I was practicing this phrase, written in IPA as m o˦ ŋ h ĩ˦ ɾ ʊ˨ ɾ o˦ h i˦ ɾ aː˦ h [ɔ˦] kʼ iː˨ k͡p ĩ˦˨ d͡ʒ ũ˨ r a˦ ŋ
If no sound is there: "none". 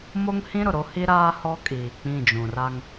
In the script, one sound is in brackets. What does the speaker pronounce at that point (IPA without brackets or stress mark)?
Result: ɔ˦